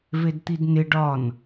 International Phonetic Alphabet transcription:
v e d t̪ i d n ɪ ɖ ɒ n

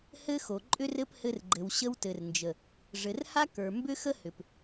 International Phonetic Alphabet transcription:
h ɘ˦ x o˨ ǃʼ ʏ˦ r ɘ˦ p h ɘ˧ r ɡ͡ǃ ɘ˨ w ɕ ə˧ w t ɘ˨ r n d͡ʒ ə˨ | ʐ ɘ˨ r h a˦ k ə˞˨ m b ʏ˦ x ə˦ h ʏ˨ p

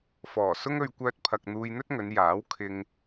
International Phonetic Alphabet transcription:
f ɔː˨˩ s ʊ˥ ŋ ɵ˧ ɥ kʷ œː˥ t̚ pʰ ɐ˧ k̚ n̪ uː˧ j n̪ ɵ˥ t̚ ŋ ɵ˨˧ n j aː˨˥ w kʰ ɪ˧ ŋ

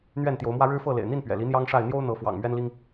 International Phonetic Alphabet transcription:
n̪ ɥ ɛ˥˨ n t̪ j o˨˦ ʊ̯ m w ä˦ ɻ ɻ̩˦ f ɤ˥˨ l ḛ˨˩ ɪ̯ n̪ i˥˨ n p ɥ ɛ̰˨˩ l i˨˦ n̪ j ɑ˦ ŋ ʂ a˥˨ ɪ̯ n̪ j o˦ ʊ̯ n̪ ɤ˨˦ f w ɑ̰˨˩ ŋ m ɥ ɛ˦ n l i˦ ŋ

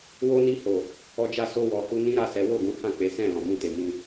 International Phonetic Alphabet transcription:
w o˧ n i˧ h o˨ | ɔ˧ d͡ʒ a˧ s o˧ w ɔ˨ h u˧ n ĩ˦ ɾ a˦˨ s ɛ˨˦ w o˦˨ ɡ ũ˨˦ h ã˦˨ k͡p e˨˦ s ɛ̃˦˨ l ɔ̃˨ m ũ˧ t e˨ m ĩ˧

